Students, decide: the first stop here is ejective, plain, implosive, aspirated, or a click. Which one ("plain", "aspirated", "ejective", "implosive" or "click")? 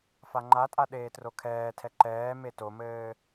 click